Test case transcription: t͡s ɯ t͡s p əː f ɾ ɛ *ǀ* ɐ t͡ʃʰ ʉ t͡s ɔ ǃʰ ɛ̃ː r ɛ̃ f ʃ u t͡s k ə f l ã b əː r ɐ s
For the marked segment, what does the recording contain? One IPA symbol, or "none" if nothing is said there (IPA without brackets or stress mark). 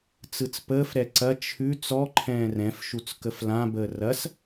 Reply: ǀ